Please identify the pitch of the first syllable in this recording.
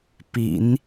low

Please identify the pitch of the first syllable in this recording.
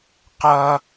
high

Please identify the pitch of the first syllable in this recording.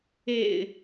low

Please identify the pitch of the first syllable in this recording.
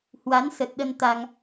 rising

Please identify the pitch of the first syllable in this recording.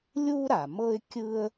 high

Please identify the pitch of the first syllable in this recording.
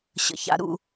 low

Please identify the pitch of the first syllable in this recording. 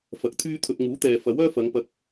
rising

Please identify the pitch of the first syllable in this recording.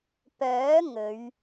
rising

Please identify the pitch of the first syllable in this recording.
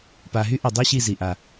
low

